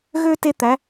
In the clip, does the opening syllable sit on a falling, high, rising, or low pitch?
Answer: high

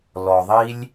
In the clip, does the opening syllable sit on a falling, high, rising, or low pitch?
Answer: low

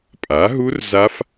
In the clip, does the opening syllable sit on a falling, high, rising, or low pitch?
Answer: rising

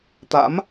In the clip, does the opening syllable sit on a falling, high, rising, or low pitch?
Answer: rising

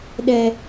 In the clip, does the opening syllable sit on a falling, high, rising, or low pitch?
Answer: high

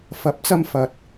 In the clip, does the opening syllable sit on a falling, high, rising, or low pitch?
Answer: rising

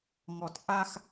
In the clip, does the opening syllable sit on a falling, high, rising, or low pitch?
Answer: low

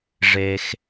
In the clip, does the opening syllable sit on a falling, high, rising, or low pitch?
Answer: low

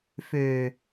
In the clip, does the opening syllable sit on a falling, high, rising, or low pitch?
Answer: low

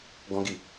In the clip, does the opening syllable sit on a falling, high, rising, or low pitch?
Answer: high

